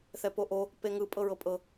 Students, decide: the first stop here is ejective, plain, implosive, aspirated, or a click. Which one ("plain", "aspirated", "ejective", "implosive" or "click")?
plain